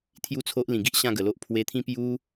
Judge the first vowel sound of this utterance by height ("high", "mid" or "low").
high